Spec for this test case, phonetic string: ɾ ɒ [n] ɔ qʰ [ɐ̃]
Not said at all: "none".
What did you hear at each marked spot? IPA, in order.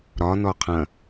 n, ɐ̃

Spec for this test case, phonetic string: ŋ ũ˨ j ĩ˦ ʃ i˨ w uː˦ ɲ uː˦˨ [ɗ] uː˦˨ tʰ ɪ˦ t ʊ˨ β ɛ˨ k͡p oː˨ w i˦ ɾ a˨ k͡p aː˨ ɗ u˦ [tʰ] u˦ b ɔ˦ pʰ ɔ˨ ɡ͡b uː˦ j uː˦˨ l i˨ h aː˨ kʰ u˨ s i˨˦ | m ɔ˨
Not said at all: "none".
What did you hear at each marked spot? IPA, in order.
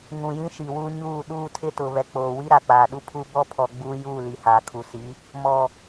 ɗ, pʰ

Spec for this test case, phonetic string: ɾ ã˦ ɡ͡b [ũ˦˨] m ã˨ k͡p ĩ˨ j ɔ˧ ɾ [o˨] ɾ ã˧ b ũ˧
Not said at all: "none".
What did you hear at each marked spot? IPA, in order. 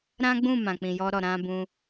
ũ˦˨, ɔ˨

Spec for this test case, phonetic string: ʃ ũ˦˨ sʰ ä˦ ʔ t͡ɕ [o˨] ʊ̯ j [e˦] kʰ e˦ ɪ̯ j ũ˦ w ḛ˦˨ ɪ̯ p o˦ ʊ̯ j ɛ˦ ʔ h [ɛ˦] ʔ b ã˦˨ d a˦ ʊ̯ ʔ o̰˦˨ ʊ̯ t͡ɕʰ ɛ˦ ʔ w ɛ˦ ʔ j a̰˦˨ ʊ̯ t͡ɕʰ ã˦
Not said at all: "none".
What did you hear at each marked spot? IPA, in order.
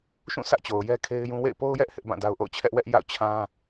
o˨, ɛ˦, ɪ˦

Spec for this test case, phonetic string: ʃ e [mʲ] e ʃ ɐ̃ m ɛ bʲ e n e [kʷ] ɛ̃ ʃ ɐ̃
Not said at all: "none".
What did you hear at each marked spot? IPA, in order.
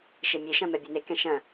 mʲ, k

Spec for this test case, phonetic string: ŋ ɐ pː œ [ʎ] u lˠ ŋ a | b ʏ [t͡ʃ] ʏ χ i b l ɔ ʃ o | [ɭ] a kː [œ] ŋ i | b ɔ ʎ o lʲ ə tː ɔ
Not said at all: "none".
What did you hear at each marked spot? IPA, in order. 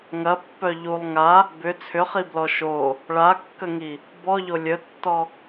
ʎ, t͡sʰ, ɭ, ə

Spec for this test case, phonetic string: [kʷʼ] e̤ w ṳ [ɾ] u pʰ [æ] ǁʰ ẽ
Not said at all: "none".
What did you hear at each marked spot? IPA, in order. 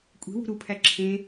kʷʼ, ɾ, æ

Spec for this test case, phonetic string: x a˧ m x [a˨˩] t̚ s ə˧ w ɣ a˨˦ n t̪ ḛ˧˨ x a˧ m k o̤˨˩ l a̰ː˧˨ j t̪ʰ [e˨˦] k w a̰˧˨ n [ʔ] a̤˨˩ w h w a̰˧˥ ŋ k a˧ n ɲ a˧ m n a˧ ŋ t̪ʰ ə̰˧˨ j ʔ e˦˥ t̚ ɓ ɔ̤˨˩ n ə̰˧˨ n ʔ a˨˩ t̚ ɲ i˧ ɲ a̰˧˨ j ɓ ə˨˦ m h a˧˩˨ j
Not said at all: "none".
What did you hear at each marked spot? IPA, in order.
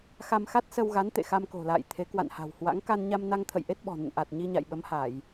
a˦˥, e˨˦, h

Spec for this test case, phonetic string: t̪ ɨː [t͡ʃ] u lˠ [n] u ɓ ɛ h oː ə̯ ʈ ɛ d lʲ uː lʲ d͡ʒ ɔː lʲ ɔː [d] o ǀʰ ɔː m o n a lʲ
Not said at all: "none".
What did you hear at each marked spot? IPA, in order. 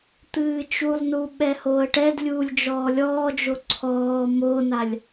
t͡ʃ, n, d͡ʒ

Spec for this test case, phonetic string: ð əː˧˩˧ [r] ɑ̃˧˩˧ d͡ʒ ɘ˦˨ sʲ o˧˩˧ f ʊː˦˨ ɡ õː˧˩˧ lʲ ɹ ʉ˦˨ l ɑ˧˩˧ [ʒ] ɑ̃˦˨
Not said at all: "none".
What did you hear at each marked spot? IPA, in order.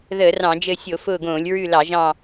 r, ʒ

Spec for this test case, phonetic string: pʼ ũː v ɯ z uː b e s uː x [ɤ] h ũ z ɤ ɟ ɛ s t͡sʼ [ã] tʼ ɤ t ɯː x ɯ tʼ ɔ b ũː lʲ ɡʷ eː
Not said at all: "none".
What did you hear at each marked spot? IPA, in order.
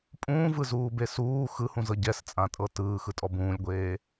ɯ, ã

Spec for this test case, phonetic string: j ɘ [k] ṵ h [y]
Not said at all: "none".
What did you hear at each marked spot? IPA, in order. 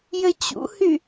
t͡ɕ, y

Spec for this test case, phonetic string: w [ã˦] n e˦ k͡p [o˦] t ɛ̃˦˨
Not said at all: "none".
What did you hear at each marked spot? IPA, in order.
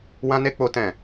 ã˦, o˦

